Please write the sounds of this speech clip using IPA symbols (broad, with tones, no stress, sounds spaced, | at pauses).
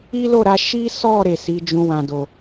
i˦ l o˦˨ ɾ a˧ ʃ i˦ s ɔ˦˨ ɾ e˨ s i˨˦ d͡ʒ ũ˧ w ã˨ d o˨